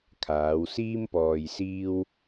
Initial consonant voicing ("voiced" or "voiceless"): voiceless